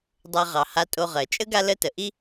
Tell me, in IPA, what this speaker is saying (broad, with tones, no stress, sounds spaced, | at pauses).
dˤ ɜ˨ ʁ ɑ˩ h a˨ tʼ o˨ ʁ ɜ˩ t͡ʃʼ ə˦ ɡ a˦ l ə˦ t ə˩ ʔ i˦